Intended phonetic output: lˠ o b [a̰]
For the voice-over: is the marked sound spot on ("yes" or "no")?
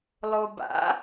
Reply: yes